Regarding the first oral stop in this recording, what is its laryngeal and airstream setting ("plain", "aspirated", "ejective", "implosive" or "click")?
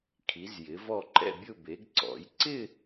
aspirated